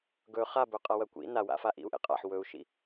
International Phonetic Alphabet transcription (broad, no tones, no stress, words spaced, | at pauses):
ɡɵ χabɵ qʼawɐkʷḭ nawa̰fa ʔḭu̯ʔḛqʼa̰ħ wɵu̯ʃḭ